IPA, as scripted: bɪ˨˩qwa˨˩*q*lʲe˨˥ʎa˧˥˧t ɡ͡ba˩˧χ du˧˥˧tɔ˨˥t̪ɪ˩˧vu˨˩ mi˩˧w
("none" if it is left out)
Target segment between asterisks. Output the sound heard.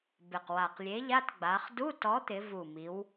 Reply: q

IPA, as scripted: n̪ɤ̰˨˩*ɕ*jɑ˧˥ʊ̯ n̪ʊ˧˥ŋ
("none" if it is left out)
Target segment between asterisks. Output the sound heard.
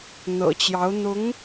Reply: t͡ɕ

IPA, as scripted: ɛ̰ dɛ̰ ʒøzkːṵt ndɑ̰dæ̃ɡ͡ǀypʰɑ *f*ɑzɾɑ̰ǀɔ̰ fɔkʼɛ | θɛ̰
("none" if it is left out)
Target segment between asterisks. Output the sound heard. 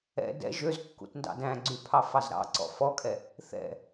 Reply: f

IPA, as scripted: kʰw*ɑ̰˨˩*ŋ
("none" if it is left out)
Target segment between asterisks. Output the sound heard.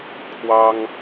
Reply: ɑ˥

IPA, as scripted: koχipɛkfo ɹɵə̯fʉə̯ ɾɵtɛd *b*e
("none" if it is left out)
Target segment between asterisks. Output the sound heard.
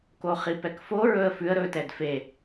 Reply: f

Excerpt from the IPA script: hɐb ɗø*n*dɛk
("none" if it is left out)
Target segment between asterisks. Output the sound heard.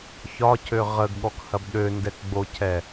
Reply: n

